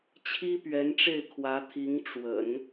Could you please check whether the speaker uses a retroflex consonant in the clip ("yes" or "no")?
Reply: yes